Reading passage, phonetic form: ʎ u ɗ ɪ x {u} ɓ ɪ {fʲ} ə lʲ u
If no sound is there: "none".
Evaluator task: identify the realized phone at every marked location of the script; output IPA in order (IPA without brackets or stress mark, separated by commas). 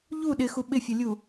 u, fʲ